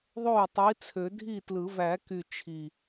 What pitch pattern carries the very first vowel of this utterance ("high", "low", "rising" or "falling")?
falling